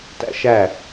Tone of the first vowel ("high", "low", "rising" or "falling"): high